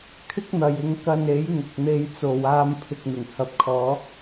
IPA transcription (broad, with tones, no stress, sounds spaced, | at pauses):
kʰ ɪ˥ k̚ n̪ ɐ˨ j ɪ˨˧ ŋ k ɐ˧ n e˨˥ j ŋ ʊ˨ k̚ n̪ e˧ j t͡s o˨ w aː˧ m pʰ ɪ˨ k̚ n̪ ɪ˨˩ ŋ h ɐ˨ p̚ kʰ ɔː˨˧